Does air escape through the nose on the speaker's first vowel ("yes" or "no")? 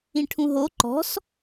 yes